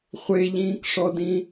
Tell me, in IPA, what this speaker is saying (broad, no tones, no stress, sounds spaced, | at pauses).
χʷ e ʎ ĩː k ʂ ɔ d ĩ